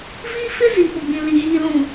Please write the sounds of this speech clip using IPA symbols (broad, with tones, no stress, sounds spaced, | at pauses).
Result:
v i˦ f ɪ˦ z i˨ p ʊ˨ ɡ͡b ĩ˨ l i˨ ɣ iː˨ l ũ˨